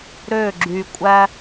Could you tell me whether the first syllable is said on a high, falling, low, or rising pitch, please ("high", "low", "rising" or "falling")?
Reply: falling